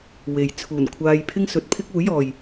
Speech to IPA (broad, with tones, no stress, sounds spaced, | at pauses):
w e˨˥ j t͡sʰ uː˨˩ n kʷʰ aː˧ j pʰ ɪ˥ ŋ s ɵ˨˥ t̚ pʰ ɪ˥ k̚ uː˨˥ j ɔː˨ j